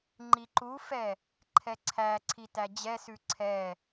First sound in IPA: ŋ͡ǃ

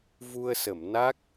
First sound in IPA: v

